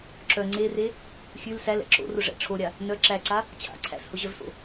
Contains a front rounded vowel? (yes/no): yes